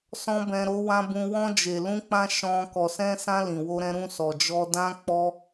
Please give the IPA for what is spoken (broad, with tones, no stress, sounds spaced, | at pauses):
s ɔ̃˦ b ɛ̃˧ ɾ o˦ w ã˦ b ũ˧ w ɔ̃˧ d͡ʒ e˨ l ũ˧ k͡p ã˧ ʃ ɔ̃˧ k ɔ˨ s ɛ̃˧ s ã˧ l ĩ˨ w o˧ ɾ ɛ̃˧ ɾ ũ˧ s ɔ˨ d͡ʒ ɔ˧ d ã˦ k͡p ɔ˦